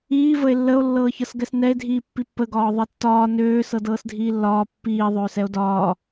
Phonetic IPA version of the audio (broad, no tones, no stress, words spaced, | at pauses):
iː vəe̯lːəo̯ lːɤːçɤsɡɛsnɛe̯ dʱiːpːipːə ɡɒːðˤɛtːɒː nøː sɤdɤːsdʱiːlːɒː pːiː ðˤøːsɛo̯dɒː